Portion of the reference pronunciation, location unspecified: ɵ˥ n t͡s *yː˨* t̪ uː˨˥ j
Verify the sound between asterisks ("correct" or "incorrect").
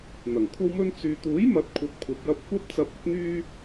correct